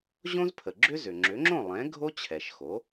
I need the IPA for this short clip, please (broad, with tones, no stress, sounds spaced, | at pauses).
ʑ õ˥ z pʰ ə˩ ɡ͡ǁ ʏ˥ z ʏ˩ ŋ͡ǁ ʏ˩˥ ŋ͡ǁ õ˥˩ lˠ ɛ̃˩˥ ɡʱ o˥ t͡ɕʰ ɛ˩ ʃ x o˩˥